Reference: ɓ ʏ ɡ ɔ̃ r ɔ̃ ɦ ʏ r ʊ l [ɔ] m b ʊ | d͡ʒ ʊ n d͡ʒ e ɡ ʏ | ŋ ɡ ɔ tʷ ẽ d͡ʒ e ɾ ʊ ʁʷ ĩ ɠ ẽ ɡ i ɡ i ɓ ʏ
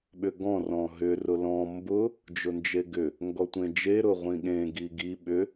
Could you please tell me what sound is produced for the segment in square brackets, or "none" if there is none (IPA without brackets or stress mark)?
ɔ̃